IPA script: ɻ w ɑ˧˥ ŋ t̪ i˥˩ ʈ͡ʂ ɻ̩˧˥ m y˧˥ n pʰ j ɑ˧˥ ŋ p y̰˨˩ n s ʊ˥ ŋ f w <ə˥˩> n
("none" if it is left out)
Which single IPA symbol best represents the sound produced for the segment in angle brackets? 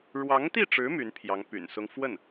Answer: ə˥˩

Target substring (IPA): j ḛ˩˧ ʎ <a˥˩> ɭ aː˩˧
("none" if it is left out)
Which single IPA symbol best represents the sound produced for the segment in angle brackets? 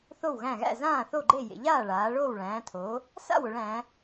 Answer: aː˥˩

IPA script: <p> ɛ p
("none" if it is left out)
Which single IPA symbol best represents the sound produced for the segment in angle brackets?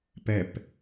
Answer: p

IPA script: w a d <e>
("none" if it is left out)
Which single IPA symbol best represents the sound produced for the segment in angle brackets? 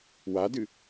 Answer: ɨ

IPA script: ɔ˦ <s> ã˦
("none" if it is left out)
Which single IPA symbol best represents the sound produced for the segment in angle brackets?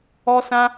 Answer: s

